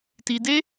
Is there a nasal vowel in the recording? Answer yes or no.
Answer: no